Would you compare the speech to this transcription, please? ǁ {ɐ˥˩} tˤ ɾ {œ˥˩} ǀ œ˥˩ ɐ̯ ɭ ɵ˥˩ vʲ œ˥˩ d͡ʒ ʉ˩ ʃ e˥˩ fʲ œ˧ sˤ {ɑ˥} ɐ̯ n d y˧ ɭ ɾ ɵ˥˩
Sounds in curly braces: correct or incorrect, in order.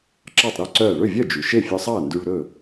incorrect, correct, incorrect

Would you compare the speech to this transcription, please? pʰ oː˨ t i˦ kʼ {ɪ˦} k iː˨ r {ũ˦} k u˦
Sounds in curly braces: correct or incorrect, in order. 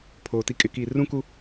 correct, correct

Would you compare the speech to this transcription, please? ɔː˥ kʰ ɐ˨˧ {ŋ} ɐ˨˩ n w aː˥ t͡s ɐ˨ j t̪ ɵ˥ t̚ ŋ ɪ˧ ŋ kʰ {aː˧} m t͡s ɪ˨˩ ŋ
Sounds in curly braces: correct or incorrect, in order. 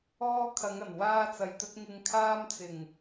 correct, incorrect

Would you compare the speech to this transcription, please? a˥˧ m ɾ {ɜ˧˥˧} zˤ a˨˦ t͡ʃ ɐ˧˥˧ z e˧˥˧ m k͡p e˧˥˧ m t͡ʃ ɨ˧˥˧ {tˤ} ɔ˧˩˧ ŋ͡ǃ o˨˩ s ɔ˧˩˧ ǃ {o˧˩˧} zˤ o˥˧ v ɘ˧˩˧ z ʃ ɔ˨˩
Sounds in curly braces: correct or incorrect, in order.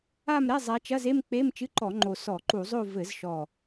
incorrect, incorrect, incorrect

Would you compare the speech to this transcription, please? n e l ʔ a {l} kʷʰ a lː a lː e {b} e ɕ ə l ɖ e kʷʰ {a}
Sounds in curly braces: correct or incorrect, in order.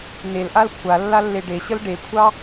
correct, incorrect, incorrect

